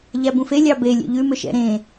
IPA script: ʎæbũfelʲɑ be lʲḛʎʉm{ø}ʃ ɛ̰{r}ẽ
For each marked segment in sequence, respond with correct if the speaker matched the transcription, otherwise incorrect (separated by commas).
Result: correct, incorrect